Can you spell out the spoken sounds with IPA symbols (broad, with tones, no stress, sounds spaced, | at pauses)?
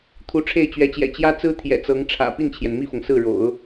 t̪ʰ u˧˥ ʈ͡ʂʰ e˥˩ ɪ̯ t͡ɕ ɥ ɛ˧˥ t͡ɕ j ɛ̰˨˩ t͡ɕ j ä˥ t͡s ɹ̩˥ t̪ʰ j ɛ̰˨˩ t͡s ɤ˧˥ ŋ ʈ͡ʂʰ ä̰˨˩ p i˥˩ n t͡ɕʰ j ɛ˩ n m i˥˩ f ɤ˩ ŋ s ɹ̩˥˩ ɻ o̰˨˩˦ ʊ̯